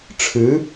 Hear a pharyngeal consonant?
no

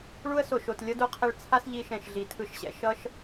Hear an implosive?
no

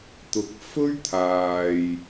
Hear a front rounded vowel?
no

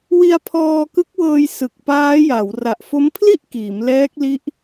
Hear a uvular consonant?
no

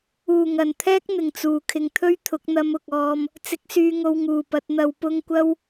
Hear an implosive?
no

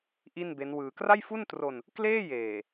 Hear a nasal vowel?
no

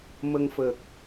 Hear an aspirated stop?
no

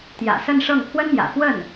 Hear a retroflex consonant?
yes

